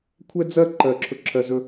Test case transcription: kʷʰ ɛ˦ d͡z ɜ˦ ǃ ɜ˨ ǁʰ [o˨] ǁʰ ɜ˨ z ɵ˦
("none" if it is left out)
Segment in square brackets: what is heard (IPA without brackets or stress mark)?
ɵ˨